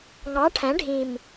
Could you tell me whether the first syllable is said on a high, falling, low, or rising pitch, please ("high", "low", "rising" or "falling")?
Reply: rising